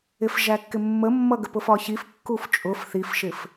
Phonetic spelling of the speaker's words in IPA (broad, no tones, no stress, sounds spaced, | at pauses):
ɪ f ʒ æ kː ɪ mː ə mː ʌ ɡ ə p ʊ f ɒ ç i f kː u f t͡ʃʼ ʊ f θ i f ʃ ɪ f